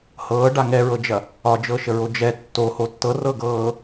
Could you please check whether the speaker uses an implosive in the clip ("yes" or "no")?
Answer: no